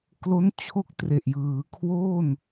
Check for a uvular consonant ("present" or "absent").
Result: absent